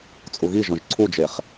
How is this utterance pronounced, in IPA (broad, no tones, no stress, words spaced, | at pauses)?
t͡sʼuɣiʒɔ̃ʒ ǀʰud͡ʒeχ